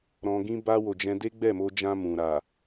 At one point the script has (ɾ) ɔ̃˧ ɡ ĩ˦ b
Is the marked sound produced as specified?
yes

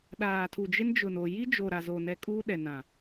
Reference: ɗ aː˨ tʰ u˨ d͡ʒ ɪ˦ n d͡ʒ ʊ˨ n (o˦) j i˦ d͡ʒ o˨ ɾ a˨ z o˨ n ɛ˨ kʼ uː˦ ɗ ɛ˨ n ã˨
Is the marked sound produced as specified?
no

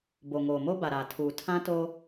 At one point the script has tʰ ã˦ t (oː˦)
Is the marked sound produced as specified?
yes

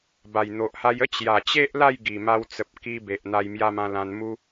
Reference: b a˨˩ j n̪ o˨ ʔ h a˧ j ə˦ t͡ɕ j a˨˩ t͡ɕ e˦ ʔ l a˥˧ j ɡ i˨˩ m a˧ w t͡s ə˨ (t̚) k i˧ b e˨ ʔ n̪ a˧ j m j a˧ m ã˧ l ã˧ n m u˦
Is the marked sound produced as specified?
no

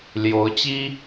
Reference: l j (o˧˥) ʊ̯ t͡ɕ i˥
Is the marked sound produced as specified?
yes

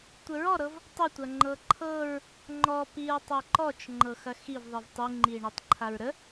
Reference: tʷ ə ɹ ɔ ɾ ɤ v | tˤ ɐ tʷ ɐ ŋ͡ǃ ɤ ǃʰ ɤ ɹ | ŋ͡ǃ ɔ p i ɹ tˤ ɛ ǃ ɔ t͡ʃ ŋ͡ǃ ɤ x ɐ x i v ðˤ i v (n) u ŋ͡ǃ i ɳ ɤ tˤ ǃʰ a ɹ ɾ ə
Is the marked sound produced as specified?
no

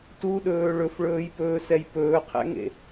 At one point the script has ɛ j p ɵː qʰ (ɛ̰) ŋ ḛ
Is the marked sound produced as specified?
yes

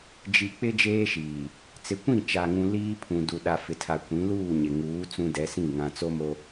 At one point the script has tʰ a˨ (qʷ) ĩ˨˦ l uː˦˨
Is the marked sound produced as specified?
no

